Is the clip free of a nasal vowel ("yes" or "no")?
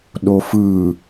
yes